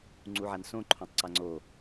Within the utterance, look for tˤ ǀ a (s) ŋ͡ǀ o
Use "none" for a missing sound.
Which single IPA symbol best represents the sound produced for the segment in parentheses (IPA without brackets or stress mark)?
none